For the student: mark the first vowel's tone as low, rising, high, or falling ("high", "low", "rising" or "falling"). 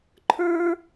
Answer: high